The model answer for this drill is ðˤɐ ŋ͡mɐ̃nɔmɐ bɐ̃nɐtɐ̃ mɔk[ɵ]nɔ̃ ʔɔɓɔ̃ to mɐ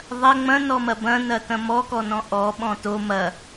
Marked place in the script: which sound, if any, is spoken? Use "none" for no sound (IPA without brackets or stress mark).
ɔ